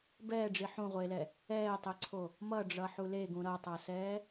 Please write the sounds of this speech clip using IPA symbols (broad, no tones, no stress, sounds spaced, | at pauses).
b ɛː ɖ͡ʐ i ħ ũ ʁʷ eː l ɛ | ɛː tˤ ɛ ǀʰ o | m ʌ ɖ͡ʐ ʌ ħ u l e ɡ ũ ɾ ʌ tˤ ʌ s ɛː